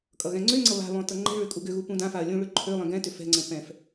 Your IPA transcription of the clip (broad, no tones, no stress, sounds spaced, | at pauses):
kʼ ʌ ɣ ɛ̃ ŋ͡ǀ ø ŋ͡ǀ ʌ β a̤ β ɔ̃ t ʌ ŋ͡ǃ ɛ̤ ɭ ø kʼ u ɡ ʏ ɣ u p ũ d ã f a ɐ̯ lʲ ũ ɭ ø ǃʰ ø lˠ ɛ̃ ɡ ɛ̃ t ʏ f ɛ̤ ŋ͡ǀ ə̃ p ɛ̃ f